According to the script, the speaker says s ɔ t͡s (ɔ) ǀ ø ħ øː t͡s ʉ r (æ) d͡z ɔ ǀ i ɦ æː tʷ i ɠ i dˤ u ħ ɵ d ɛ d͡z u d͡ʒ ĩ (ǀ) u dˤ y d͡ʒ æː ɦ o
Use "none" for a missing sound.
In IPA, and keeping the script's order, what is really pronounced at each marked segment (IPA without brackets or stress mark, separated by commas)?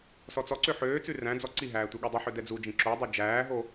ɔ, æ̃, ǁ